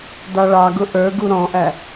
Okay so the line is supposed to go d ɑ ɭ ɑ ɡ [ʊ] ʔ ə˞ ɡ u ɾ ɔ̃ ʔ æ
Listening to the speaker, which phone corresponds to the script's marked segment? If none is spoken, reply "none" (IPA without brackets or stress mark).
ʊ